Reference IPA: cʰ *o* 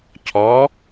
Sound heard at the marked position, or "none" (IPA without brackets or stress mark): ɔ